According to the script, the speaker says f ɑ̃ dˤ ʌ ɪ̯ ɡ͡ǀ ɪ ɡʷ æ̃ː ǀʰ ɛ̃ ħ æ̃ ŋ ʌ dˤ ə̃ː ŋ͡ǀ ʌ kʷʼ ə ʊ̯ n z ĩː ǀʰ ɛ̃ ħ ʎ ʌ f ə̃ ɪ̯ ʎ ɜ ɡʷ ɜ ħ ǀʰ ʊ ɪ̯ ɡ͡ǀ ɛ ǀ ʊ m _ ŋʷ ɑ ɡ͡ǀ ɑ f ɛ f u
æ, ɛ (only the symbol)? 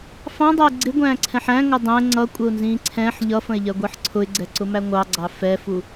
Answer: æ